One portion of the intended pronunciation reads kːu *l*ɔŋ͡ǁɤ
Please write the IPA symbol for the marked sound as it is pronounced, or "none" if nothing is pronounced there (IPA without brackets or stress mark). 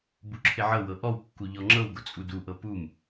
ʎ